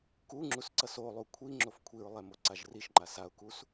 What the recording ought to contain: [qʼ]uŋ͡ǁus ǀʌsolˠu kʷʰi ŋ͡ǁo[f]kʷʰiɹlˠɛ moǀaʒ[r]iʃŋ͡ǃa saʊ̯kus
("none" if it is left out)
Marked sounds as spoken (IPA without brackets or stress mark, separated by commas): k, f, r